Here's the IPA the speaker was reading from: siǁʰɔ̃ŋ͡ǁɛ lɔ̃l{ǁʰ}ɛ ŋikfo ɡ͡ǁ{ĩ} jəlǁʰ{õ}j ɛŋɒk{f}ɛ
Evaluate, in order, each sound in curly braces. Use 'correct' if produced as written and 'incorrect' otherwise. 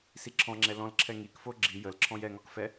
correct, incorrect, incorrect, correct

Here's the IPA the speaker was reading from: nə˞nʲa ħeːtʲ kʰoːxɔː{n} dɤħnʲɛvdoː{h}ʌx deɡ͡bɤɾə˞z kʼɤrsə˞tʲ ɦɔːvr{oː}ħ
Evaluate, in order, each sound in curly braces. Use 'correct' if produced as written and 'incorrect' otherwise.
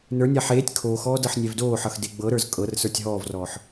incorrect, incorrect, incorrect

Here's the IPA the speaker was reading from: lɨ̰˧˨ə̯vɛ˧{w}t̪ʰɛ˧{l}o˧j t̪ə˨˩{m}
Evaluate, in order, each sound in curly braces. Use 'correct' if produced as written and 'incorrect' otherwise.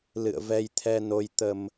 incorrect, incorrect, correct

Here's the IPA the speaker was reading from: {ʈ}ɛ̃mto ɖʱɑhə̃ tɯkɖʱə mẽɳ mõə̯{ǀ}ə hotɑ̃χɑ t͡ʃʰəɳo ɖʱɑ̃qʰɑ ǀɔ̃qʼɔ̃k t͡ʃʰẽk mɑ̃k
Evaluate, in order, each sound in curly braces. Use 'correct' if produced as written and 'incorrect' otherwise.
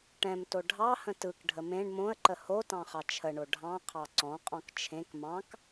correct, incorrect

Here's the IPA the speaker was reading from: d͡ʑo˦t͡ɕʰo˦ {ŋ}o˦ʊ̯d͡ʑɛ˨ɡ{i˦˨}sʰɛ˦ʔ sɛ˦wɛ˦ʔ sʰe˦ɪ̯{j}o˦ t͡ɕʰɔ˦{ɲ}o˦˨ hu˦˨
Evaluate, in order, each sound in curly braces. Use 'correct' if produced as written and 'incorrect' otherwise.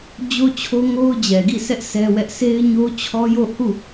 correct, correct, incorrect, incorrect

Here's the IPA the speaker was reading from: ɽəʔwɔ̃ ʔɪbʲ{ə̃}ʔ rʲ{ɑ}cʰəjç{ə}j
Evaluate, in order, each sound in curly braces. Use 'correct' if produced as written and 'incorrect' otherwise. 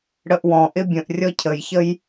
correct, incorrect, correct

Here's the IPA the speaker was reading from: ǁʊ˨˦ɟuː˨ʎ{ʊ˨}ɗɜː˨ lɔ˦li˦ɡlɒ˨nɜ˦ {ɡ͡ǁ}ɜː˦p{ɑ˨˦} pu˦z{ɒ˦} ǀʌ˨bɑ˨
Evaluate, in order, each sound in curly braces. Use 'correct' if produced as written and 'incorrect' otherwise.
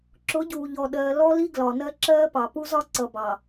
incorrect, incorrect, incorrect, correct

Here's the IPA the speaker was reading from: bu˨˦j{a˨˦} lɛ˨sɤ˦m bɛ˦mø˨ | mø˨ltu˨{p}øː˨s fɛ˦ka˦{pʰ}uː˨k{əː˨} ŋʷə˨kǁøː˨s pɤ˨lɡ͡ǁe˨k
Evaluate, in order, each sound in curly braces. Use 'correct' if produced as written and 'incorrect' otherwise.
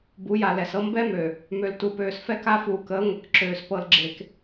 incorrect, correct, incorrect, incorrect

